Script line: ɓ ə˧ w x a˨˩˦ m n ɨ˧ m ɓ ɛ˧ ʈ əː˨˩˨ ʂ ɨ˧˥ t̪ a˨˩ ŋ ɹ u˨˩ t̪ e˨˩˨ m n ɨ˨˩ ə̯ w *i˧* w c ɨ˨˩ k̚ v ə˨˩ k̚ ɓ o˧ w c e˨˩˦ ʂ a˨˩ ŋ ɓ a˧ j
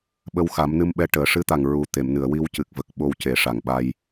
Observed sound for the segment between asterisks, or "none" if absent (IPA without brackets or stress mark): i˧